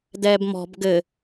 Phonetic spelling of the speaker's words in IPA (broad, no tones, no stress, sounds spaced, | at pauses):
d ɛː b m ɔ̤ b ɡ ɘ